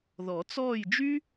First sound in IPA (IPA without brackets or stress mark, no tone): ð